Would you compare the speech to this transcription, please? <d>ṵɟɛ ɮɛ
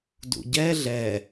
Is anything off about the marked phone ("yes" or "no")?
no